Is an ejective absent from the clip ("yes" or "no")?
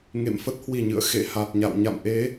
yes